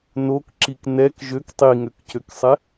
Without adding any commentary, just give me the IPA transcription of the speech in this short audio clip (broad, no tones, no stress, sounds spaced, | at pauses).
n o k ǁ i k n ɛ k ʒ ø k tˤ i ŋ ø k c ø k sˤ ɛ